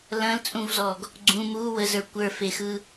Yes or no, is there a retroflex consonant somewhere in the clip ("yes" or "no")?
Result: no